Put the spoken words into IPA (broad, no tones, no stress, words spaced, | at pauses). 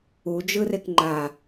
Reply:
ud͡ʒɯrek ŋ͡ǃa